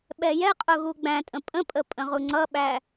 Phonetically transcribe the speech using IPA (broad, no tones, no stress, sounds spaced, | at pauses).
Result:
ɓ ɛ j ɛ qʼ ʊ ɣ u ɡ͡b æ̃ tʼ ə̃ pʼ ə̃ pʼ ə pʼ ə̃ ʁ u ŋ͡ǀ ʌ ɓ æ